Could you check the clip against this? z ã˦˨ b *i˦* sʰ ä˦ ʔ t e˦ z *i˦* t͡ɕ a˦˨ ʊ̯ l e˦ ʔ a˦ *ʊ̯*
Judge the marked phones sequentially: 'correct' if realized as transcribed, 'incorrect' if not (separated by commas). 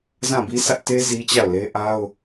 correct, correct, correct